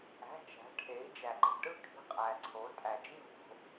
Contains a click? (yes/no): yes